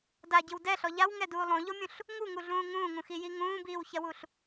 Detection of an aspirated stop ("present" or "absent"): absent